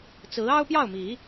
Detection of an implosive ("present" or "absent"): absent